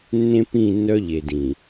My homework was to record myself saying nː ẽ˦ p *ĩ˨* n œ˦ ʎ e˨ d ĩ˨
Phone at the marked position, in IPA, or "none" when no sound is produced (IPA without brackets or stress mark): ĩ˦˨